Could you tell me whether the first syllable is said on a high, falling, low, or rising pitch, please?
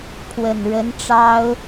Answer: low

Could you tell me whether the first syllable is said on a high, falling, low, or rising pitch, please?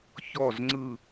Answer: falling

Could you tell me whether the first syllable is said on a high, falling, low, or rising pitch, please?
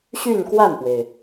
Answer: falling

